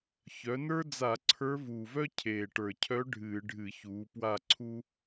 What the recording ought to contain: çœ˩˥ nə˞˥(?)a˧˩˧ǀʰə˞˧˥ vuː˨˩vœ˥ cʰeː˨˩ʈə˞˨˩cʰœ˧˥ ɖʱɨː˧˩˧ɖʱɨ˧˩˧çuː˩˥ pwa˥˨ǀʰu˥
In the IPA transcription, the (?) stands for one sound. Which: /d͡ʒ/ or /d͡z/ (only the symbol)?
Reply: d͡z